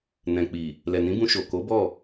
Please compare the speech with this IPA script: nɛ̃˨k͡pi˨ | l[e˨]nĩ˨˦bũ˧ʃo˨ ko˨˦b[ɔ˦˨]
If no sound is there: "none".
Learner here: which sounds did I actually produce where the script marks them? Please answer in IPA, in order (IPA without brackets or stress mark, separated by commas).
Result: ɛ˨, ɔ˦˨